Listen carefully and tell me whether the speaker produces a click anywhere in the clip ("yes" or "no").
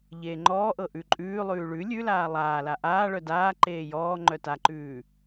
yes